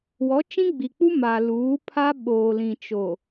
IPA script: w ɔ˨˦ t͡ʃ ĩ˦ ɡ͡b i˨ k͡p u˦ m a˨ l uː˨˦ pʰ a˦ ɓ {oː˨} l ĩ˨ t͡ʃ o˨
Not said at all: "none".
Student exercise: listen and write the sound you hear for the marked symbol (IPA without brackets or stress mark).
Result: oː˨